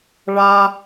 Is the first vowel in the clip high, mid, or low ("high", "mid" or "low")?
low